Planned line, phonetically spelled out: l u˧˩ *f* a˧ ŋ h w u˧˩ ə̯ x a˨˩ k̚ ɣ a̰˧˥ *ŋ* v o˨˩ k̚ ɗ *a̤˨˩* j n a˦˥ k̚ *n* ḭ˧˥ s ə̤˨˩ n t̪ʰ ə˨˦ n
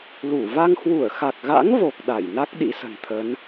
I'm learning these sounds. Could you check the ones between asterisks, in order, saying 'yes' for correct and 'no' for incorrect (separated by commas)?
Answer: no, yes, no, no